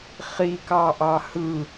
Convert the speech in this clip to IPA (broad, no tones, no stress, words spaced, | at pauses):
χi kɑʔɑhɯ